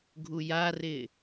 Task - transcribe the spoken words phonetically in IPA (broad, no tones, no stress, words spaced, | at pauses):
ɡʱujarɪː